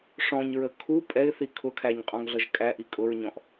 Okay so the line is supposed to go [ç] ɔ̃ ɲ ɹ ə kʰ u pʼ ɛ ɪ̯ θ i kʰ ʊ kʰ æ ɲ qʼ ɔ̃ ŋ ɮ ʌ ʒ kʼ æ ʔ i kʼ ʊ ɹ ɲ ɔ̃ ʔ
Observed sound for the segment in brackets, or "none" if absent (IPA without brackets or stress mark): ʂ